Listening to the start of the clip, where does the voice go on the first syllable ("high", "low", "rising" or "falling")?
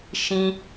high